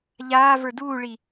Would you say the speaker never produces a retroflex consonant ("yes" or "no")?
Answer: no